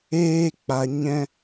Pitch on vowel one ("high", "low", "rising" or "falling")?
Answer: high